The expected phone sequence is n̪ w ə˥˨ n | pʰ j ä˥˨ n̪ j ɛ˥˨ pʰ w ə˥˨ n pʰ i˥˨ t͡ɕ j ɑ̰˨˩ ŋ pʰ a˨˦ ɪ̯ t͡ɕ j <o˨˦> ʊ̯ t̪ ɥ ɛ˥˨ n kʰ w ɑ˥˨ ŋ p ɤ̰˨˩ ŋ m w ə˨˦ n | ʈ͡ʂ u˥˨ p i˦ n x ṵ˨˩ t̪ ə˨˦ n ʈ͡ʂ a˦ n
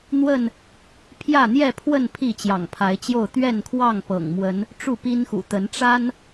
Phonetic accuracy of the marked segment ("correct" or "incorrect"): incorrect